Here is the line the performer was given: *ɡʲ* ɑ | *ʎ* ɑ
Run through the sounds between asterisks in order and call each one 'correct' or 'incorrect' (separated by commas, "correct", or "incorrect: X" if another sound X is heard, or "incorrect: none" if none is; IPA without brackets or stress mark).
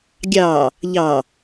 correct, correct